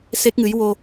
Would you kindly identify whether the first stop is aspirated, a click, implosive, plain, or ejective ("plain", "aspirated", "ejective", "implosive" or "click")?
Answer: plain